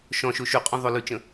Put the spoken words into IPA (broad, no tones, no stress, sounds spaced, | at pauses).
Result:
ʃ ɔ̃ ʃ o ʃ ʉ qʼ ũ ðˤ o l ʉ t͡ʃ ə̃